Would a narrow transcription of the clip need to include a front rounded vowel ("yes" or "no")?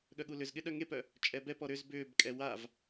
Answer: yes